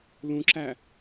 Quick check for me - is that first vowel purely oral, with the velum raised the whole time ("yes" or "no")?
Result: no